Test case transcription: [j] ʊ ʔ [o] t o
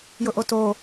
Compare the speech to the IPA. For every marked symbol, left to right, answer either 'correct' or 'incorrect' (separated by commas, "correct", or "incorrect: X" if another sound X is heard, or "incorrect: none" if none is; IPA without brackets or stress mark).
correct, correct